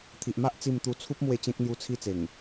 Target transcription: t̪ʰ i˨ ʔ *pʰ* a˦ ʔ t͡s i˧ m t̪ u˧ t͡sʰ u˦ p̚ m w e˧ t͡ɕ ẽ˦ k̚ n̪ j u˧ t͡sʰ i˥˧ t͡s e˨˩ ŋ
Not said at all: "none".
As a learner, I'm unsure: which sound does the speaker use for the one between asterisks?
m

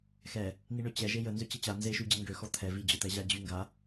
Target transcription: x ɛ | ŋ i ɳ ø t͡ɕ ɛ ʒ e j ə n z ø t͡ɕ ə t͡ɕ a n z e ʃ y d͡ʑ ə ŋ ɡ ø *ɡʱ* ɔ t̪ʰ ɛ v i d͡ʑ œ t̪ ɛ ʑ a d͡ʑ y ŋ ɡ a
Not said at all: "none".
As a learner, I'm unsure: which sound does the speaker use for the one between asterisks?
x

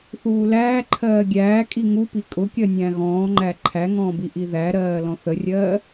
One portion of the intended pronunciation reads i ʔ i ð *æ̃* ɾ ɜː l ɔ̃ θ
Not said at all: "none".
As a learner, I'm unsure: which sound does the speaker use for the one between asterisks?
æ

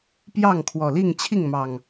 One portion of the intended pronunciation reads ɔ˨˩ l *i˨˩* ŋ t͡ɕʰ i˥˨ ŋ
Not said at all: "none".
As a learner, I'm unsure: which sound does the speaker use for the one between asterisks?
i˥˨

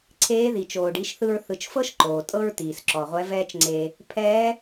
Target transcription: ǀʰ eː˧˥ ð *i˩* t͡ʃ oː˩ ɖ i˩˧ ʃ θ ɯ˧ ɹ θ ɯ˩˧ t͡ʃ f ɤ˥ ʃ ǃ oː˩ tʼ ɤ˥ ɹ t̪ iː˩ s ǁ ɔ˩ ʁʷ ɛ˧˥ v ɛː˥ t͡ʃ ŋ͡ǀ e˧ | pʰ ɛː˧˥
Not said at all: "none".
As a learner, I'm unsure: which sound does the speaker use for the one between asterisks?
i˩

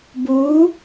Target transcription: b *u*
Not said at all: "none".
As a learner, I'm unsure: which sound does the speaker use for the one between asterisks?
u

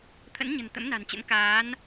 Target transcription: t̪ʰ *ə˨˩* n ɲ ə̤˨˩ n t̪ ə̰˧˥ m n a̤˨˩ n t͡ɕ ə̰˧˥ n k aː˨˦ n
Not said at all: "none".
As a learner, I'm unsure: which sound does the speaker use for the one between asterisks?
ə̰˧˥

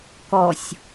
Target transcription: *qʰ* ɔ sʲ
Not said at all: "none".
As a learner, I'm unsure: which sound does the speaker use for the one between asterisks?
k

